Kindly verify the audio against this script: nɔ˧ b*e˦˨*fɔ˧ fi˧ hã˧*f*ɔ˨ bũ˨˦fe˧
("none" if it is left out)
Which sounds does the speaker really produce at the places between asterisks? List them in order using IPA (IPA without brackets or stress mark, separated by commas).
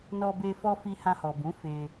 e˧, h